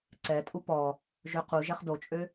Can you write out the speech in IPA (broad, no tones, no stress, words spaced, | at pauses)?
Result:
ǀɛ tʼupɔ | ʒøqu ʒɛχdot͡ʃʼø